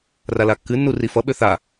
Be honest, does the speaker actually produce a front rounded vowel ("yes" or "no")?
yes